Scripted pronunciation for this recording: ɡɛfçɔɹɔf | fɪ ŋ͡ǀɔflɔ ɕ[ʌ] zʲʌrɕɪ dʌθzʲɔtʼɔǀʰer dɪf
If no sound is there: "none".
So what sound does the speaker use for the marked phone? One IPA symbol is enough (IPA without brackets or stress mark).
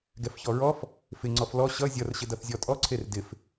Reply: ʌ